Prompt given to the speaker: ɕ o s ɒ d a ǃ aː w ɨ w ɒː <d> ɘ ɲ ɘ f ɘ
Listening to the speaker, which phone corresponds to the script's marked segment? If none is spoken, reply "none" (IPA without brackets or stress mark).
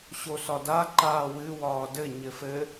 d